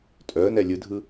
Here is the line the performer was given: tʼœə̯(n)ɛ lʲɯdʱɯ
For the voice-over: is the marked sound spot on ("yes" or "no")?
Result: yes